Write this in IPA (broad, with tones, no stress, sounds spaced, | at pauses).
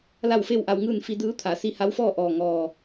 l a˥˨ w f e˥˨ w ʔ a˧ w ŋ ɯː˥˨ n f i˧ d ɯː˧˥ t̪ʰ a˩˧ s i˧ h a˧˥ w f ɔː˥˨ ʔ ɔː˧˩ ŋ ɔː˧˩